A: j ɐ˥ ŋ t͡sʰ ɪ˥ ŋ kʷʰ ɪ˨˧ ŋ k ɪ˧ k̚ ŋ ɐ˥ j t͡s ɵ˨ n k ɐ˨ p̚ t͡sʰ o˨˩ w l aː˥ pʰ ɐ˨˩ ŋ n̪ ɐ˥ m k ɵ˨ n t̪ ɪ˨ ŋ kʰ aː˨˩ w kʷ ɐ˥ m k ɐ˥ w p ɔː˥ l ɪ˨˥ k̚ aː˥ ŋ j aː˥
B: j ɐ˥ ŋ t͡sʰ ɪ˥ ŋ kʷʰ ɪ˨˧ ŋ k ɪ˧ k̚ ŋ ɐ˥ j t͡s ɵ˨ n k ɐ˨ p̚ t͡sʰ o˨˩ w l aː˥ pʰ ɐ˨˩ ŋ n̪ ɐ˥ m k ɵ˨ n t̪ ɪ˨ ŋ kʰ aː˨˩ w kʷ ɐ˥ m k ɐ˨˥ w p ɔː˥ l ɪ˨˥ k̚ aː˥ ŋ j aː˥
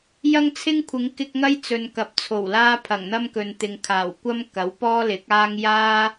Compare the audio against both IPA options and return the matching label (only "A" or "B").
B